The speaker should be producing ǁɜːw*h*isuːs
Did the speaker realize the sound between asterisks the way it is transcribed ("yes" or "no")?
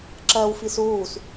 no